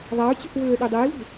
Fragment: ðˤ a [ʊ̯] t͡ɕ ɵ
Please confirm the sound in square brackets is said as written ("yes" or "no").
yes